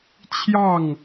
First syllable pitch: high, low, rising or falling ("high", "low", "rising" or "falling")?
falling